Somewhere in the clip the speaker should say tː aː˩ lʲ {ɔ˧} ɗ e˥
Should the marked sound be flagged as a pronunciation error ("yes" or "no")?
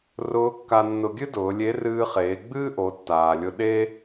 yes